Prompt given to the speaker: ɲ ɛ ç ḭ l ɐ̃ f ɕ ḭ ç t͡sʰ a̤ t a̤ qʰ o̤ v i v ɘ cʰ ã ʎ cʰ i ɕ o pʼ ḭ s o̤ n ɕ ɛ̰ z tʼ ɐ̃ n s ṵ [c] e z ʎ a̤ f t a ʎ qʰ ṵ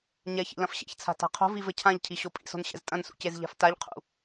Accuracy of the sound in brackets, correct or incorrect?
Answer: correct